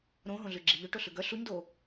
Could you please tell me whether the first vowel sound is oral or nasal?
nasal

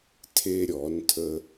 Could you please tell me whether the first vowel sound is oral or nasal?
oral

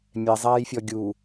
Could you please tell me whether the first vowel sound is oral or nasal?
oral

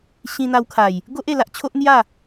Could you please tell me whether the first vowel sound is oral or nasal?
nasal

